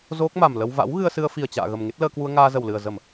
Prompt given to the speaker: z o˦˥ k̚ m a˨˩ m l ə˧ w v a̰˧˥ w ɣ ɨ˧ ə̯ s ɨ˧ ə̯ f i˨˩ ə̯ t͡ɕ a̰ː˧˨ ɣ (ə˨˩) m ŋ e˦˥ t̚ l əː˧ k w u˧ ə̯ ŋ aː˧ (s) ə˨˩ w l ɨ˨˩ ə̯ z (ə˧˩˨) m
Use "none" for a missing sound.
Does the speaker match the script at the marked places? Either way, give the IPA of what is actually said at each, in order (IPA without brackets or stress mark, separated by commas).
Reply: ə˨˩, z, ə˧˩˨